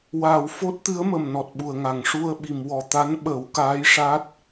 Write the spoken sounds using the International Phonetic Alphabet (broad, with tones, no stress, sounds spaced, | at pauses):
w aː˨˩˨ w f o˦˥ t̚ t̪ ɨ˧˥ ə̯ m ə˨˩ m n ɔ˨˩ t̚ ɓ u˨˩ ə̯ ŋ a˨˩˨ ŋ ʂ u˧ ə̯ ɓ i˨˩˨ m w ɔ˨˩ t̪ a˧˥ n ɓ ə˨˩˦ w k aː˧˥ j ʂ a˦˥ t̚